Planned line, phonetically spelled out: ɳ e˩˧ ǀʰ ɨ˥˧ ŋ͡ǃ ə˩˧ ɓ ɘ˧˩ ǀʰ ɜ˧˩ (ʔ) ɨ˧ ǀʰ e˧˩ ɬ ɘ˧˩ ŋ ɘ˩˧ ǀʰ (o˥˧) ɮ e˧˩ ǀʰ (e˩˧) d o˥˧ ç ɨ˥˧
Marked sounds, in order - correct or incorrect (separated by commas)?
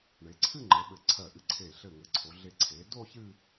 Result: correct, incorrect, correct